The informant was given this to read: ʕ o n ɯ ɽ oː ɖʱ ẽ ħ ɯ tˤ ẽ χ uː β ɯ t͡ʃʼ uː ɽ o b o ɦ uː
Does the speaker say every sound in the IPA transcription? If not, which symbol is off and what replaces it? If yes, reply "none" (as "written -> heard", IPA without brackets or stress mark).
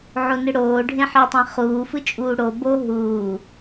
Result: β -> f